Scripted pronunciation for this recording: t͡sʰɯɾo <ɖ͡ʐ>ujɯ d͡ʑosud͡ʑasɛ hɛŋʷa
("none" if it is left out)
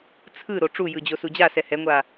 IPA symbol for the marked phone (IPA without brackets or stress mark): ʈ͡ʂ